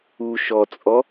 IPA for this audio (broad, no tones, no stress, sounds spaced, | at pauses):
u ʃ ɔ t͡sʼ ɔ